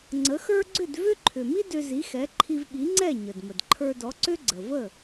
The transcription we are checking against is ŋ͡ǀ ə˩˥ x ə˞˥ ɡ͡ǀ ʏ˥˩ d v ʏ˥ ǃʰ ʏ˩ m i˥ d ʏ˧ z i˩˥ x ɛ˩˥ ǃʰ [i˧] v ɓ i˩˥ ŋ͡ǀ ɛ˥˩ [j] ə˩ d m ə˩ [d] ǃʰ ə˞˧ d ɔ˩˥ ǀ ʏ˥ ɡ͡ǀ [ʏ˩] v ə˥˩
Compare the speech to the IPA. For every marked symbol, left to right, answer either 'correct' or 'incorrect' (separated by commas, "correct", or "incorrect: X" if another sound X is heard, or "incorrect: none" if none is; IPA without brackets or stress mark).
correct, incorrect: ɲ, correct, incorrect: ə˩